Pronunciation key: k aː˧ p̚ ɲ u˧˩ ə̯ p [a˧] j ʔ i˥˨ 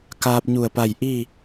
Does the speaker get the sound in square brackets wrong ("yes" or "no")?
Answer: yes